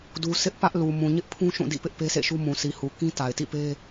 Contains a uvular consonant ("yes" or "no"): no